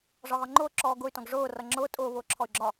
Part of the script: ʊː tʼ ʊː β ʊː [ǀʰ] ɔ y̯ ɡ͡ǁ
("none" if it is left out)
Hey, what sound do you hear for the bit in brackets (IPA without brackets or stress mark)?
ǁʰ